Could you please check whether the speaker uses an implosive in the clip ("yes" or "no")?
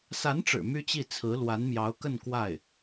no